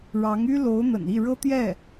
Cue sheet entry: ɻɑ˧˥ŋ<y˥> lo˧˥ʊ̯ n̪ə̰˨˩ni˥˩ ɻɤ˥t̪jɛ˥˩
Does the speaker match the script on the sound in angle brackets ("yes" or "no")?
yes